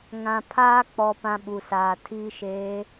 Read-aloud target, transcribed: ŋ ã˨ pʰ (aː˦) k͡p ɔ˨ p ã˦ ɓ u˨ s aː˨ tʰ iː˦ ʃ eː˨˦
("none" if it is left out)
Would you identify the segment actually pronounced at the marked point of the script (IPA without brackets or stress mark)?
aː˦